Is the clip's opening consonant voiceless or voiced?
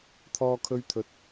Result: voiceless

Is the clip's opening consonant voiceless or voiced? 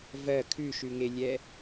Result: voiced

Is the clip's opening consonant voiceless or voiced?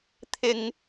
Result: voiceless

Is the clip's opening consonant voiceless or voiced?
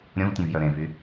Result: voiced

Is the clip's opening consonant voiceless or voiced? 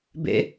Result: voiced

